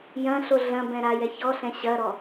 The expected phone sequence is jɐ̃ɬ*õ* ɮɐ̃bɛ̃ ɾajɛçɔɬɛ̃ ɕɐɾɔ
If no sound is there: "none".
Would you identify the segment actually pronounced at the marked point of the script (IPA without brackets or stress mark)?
o